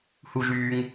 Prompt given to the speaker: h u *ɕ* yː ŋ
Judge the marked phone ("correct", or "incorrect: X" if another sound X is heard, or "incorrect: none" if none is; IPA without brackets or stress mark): incorrect: ʒ